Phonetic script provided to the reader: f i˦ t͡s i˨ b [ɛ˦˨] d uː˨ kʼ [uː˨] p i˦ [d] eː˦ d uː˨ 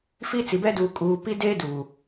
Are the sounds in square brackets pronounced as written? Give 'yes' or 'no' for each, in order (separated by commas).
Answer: no, yes, yes